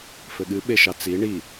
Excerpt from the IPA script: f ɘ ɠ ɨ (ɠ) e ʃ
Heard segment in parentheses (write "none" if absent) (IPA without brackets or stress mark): ɓ